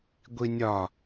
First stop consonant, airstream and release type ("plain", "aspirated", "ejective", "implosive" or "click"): plain